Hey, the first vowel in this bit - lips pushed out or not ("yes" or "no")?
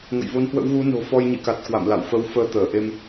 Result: no